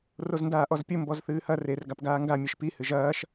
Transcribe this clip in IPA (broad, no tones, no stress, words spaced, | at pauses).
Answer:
rozndaːʔɔzpʲɘ mbɔzθɨːhɐ rer ɡapɡaːŋɡa mʲeʃpi hɨʒɐːʃ